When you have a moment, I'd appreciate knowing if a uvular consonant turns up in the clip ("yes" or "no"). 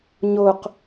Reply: yes